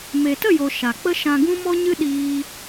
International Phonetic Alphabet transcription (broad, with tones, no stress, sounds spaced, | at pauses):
m e˨ t ə˦˨ j o˨ ʃ a˨ k͡p ə˦ ʃ ã˧ ɡ ũ˦ m ɔ˦ ɲ ɨ˦ ɗ iː˧